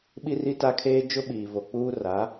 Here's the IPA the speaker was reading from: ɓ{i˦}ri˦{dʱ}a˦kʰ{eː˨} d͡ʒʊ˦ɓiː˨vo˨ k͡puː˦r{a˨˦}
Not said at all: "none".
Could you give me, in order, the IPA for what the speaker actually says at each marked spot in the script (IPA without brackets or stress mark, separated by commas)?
i˦, t, eː˦, a˨˦